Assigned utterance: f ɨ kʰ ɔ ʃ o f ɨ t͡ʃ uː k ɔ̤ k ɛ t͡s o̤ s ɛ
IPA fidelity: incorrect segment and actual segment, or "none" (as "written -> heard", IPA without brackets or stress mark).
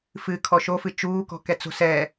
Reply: none